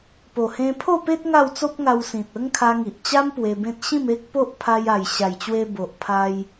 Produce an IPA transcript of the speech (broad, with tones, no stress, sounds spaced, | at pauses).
p o˨˩ h ẽ˧ pʰ o˥˧ p e˦ t̚ ŋ a˥˧ w t͡s o˦ p̚ ŋ a˧ w s ĩ˨ t̚ ə˦ ŋ kʰ a˧ ŋ i˨ ʔ t͡ɕ a˦ m p w e˧ b ẽ˦ t̚ ɕ ĩ˥˧ m e˦ k̚ p o˦ ʔ pʰ a˧ j a˨˩ j ɕ a˨˩ j t͡ɕ w e˧ b o˨ ʔ pʰ a˧ j